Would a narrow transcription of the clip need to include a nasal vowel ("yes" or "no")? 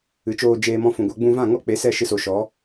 yes